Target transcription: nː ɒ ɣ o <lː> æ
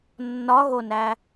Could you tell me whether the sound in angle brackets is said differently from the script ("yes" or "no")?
yes